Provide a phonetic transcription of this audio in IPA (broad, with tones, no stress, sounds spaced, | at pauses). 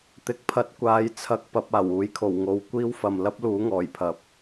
t̪ ɪ˨˥ k̚ pʰ ɐ˨˥ t̚ kʷ aː˨˥ j t͡sʰ ɐ˧ k̚ p ɐ˧ p̚ aː˨˩ w uː˨˥ j kʰ o˨˩ w ŋ o˨ w kʷ iː˥ w f ɐ˨ m l ɐ˥ p̚ l uː˨˥ ŋ ɔː˨˩ j pʰ ɐ˨˥ p̚